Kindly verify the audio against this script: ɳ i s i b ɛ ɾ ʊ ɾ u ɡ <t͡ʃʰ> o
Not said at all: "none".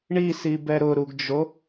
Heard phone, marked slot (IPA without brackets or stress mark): d͡ʒ